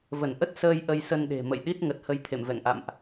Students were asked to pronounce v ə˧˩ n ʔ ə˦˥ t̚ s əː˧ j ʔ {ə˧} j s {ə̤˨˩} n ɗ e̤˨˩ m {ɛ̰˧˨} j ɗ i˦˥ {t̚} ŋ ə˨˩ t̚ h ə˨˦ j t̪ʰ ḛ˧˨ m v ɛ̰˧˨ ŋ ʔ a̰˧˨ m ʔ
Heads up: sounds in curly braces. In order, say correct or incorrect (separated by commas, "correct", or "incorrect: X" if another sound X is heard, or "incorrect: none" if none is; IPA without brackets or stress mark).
correct, incorrect: ə˧, incorrect: ə̰˧˨, correct